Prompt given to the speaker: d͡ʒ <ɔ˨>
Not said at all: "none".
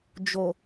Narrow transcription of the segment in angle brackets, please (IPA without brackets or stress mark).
o˨